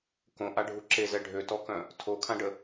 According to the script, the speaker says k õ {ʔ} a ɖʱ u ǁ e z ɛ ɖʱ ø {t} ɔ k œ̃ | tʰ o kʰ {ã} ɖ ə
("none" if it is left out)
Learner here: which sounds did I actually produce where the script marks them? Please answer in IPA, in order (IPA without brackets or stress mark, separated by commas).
ʔ, t, ã